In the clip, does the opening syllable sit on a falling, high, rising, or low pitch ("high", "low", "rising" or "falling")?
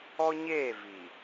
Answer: high